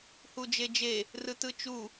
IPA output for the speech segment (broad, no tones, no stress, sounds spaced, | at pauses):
h u d͡ʒ e d͡ʒ e | r ɯ t ɯ t͡ʃ u